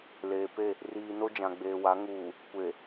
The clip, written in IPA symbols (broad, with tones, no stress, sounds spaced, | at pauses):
l eː˨ p e˦˨ | r iː˨ n o˦ d͡ʒ ã˨ ɡ͡b eː˨ w a˨˦ ŋ uː˨ | kʷ e˨